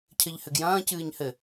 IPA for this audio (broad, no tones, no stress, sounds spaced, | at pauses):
cʰ ɘ ʎ h ɘ ɡ j ɐ̃ː c ɨː ɲ h ɘ